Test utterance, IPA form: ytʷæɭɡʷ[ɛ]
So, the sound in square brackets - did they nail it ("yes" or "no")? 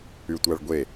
no